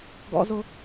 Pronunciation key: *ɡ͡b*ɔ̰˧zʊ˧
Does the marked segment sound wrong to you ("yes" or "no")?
yes